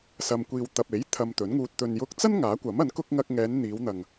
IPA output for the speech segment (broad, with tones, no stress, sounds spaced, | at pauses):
s ɐ˨ m kʷ iː˨ w t̪ ɐ˨ p̚ e˨˥ j t̪ʰ ɐ˧ m t̪ ɵ˨˥ n ŋ uː˧ t̚ t̪ ɵ˨ n j ʊ˧ k̚ t͡s ɐ˥ n ŋ aː˨˥ kʷ ɐ˨˥ m ɐ˨˥ n k ʊ˥ k̚ ŋ ɐ˧ k̚ ŋ ɛː˨˧ n n̪ iː˨˧ w n̪ ɐ˨ ŋ